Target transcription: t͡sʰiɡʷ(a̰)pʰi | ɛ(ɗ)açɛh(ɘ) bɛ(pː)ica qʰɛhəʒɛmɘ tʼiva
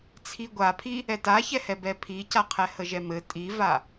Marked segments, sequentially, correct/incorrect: incorrect: a, incorrect: t, incorrect: ɛ, incorrect: pʰ

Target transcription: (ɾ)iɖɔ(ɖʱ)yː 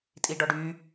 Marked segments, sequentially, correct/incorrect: incorrect: tʼ, incorrect: ɖ

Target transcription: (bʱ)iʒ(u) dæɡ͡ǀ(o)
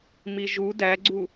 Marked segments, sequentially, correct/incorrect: incorrect: m, correct, incorrect: u

